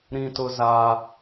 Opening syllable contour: high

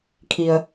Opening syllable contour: low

